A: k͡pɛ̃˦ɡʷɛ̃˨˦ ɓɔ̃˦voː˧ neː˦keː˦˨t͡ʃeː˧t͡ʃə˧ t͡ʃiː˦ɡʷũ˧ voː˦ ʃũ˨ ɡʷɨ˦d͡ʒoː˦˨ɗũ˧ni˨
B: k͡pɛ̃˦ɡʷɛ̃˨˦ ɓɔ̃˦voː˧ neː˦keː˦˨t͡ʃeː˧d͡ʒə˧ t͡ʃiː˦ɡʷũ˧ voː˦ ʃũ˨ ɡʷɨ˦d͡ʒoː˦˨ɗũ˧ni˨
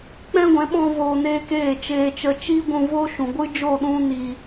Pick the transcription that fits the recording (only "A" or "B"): A